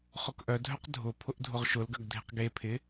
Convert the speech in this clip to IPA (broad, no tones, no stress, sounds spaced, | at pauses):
χ ʊ k ʔ œ dʱ œ q dʱ ʊ pʰ ʊ ʔ dʱ ʊ ʁ ʃ ʊ l ɡ ɐ ɡ dʱ ɪ q ɡ e pʰ ɪ